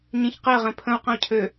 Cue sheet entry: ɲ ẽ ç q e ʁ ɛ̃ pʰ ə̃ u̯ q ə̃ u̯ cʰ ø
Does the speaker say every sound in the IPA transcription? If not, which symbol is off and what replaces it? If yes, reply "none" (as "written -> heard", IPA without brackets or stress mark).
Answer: none